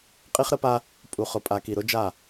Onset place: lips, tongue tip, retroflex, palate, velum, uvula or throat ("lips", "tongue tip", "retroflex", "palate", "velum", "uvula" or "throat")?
uvula